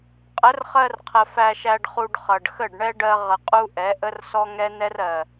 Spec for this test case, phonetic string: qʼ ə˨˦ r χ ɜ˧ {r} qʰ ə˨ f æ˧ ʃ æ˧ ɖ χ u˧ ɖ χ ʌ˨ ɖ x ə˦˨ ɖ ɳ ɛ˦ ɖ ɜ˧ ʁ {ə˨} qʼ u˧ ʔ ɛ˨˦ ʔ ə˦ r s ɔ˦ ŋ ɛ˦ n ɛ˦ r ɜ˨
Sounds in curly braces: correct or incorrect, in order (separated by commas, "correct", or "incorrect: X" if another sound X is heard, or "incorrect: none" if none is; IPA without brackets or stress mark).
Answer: correct, correct